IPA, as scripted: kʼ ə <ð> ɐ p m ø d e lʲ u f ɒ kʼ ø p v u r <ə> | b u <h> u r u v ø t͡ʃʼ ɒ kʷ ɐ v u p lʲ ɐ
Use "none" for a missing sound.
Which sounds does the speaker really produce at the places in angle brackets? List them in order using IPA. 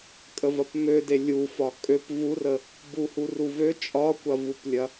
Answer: v, ə, h

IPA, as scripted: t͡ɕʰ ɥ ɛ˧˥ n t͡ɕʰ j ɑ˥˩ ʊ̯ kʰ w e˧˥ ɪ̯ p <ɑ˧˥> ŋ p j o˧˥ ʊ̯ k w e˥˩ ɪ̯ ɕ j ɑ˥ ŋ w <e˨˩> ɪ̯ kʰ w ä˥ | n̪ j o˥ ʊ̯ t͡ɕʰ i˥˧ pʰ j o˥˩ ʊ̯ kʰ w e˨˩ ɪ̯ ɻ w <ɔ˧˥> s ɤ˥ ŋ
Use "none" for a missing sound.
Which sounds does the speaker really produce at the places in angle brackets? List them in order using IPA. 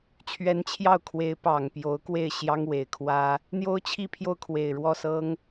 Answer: ɑ˨˩, e˨˩, ɔ˥˩

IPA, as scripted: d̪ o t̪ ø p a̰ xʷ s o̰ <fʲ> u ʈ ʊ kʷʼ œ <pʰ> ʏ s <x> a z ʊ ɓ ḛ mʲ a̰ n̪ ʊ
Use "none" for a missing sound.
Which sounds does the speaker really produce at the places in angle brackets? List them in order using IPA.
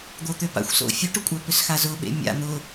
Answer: fʲ, p, x

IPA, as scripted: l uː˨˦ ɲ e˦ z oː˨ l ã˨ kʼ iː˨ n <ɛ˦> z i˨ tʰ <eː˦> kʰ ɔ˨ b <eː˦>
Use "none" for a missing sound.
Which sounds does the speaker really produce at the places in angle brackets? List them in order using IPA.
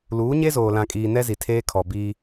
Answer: ɛ˦, eː˦, iː˦

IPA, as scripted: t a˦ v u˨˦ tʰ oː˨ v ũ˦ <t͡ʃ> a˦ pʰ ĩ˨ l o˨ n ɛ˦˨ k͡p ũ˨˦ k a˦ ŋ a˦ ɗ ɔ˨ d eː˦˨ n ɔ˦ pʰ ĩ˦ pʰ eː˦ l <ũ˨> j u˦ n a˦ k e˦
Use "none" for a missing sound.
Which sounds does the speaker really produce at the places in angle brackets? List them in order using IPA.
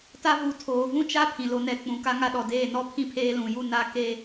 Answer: t͡ʃ, ũ˨

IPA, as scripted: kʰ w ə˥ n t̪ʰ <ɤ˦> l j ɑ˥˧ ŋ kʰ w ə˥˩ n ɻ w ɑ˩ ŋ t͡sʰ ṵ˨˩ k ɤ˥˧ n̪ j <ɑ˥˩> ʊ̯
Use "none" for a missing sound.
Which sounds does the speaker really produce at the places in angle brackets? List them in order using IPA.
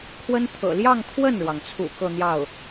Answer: ɤ̰˨˩, ɑ˥˩

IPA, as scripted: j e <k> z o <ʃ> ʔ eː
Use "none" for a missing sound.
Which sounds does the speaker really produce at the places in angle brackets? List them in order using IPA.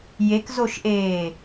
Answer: k, ʃ

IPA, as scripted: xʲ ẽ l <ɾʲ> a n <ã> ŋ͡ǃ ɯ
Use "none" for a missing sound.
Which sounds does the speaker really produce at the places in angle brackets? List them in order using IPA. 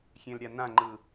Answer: ɾʲ, ã

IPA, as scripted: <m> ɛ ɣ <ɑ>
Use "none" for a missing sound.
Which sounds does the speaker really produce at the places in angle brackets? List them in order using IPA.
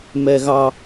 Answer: m, ɑ

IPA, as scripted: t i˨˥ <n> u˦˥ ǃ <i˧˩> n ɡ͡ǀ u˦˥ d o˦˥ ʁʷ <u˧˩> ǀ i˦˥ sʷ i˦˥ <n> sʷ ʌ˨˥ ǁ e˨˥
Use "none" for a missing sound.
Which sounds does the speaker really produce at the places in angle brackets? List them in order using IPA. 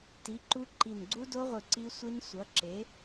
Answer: ǃ, i˧˩, ɯ˧˩, n

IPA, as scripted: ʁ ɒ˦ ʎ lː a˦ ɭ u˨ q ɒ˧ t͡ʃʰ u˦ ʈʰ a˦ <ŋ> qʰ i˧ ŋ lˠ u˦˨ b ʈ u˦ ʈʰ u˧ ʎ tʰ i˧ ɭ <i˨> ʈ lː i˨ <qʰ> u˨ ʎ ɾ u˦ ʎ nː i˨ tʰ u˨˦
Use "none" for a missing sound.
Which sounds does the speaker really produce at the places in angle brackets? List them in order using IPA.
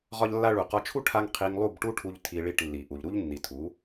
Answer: ŋ, i˦˨, ʔ

